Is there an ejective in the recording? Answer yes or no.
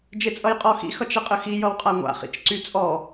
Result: yes